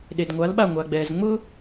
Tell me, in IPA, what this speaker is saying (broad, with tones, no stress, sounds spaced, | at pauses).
ɗ e˩ d ŋʷ a˩˥ l ɓ a˥˩ ŋʷ a˩ ɡ͡b ɛː˩ z ŋ͡m ʊː˥